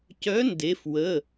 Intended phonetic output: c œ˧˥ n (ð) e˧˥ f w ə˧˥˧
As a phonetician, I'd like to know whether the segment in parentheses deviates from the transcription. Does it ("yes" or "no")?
yes